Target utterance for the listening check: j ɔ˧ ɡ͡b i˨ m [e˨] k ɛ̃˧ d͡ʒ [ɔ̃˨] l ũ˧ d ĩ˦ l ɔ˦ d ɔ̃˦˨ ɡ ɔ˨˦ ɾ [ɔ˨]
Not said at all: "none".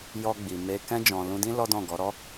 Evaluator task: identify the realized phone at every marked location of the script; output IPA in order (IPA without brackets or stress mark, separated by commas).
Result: e˧, ɔ̃˨, ɔ˦